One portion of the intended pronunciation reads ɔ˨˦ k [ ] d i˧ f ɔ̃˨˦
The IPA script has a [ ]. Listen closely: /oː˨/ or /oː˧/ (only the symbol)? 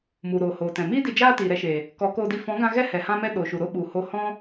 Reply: oː˧